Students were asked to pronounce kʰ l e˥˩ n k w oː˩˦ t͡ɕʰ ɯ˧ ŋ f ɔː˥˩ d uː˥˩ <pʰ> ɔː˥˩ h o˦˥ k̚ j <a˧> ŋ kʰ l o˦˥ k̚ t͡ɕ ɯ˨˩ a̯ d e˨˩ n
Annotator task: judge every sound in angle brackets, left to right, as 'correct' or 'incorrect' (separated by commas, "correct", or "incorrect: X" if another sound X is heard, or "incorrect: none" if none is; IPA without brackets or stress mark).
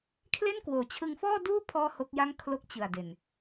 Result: correct, incorrect: a˥˩